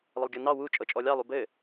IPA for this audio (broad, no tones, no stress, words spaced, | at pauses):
lˠəlˠɡʲɤnɑ wu t͡ʃʼɤt͡ʃʼɔlʲɑ lˠubɘ